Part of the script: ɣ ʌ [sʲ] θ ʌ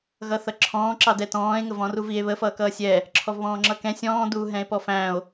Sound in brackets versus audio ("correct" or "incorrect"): incorrect